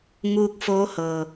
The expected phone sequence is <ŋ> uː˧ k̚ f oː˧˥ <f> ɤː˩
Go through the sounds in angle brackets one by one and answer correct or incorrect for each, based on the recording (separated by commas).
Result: correct, incorrect